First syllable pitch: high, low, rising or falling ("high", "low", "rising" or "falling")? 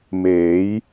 rising